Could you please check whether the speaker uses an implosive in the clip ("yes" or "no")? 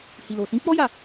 no